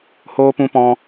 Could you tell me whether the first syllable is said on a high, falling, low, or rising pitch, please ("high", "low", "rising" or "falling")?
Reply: high